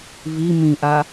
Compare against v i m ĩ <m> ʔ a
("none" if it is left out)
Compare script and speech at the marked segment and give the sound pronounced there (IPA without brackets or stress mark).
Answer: none